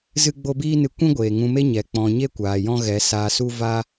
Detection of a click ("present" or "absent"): absent